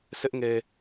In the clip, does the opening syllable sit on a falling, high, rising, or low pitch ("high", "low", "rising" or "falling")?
high